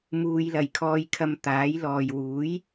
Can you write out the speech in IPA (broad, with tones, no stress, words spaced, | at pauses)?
muː˨jlɐ˨˩j kʰɔː˧jkʰɐ˧mt̪aː˨˥j lɔː˨j wuː˨˥j